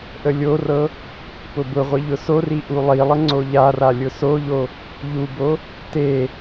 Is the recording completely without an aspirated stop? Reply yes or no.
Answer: yes